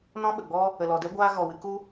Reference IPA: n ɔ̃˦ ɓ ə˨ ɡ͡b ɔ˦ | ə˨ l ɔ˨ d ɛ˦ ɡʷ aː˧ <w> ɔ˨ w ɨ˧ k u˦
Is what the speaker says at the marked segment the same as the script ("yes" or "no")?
no